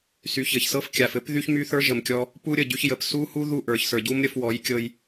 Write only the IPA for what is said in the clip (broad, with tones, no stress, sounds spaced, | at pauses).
s y˨ ç ɘ˨ ç s ɤ˦ f kʲ a˨ f ɘ˦ p ð y˦ ç m y˦ θ ə˞˦ ʒ ə˨ m kʲ ɔ˧ | p u˦ ɾʲ ə˨ ɟ y˧ ç j ə˨ p s u˦ h u˦ ð u˦˨ ʔ ə˞˨ ç s ə˞˨ ɟ u˦ m ɾʲ ə˧ f w ɔ˨˦ j kʲ ɤ˧ j